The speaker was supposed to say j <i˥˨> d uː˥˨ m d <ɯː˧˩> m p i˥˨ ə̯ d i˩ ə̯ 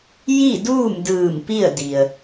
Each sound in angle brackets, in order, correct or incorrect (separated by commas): correct, correct